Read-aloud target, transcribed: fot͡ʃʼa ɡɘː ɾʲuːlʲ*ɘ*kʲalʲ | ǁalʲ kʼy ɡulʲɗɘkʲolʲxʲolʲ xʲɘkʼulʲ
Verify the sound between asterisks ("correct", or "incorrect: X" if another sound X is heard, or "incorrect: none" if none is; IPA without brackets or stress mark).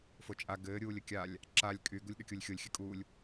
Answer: correct